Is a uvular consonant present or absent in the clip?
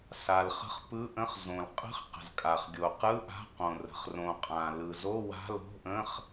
present